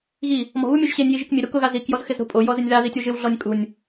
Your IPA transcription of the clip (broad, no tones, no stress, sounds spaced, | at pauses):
ɣ i | m ɔ̤ β u mʲ o ʒ ɕ e nʲ j i ʒ i k mʲ e ɾ u k ʊ ɣ a z i k j ɔ z x ɪ z ɾ o̤ pʼ o j ɔ z ɪ nʲ ð a ð i tʲ o ʒ ɪ w ɮ ɔ nʲ kʼ u nʲ